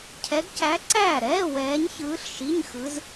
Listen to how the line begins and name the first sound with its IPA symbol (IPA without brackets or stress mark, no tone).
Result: cʰ